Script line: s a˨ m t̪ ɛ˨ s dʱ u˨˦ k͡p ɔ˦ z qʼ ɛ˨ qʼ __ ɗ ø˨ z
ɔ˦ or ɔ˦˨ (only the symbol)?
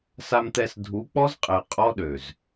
ɔ˦